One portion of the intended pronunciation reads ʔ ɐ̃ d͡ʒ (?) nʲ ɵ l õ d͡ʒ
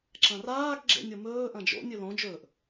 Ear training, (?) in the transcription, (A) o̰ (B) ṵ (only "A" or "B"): A